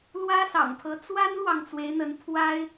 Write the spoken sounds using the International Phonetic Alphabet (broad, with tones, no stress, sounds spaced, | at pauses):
l w ä˥ s ɑ̰˨˩ ŋ pʰ ɤ˧˥ t͡s w a˥ n l w ɑ˨ ŋ t͡s w e˧˥ ɪ̯ n̪ ə˧˥ n pʰ w a˥ ɪ̯